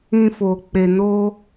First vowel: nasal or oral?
nasal